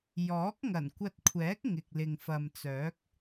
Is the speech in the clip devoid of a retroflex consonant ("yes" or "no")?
yes